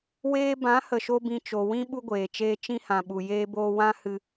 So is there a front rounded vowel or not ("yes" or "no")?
no